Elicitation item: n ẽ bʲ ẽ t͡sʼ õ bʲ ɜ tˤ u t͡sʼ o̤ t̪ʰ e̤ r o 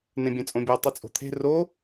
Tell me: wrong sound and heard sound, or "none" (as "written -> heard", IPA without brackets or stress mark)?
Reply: none